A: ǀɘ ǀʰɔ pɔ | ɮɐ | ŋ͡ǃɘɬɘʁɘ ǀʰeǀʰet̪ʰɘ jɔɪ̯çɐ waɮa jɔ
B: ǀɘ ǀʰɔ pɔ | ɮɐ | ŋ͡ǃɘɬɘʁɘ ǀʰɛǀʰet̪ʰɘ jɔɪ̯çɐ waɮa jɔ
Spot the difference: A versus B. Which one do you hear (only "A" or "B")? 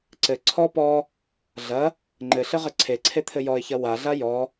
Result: A